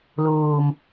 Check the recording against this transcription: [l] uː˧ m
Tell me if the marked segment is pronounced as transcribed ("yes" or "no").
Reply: yes